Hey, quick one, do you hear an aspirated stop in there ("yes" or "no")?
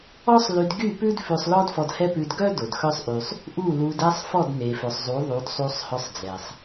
no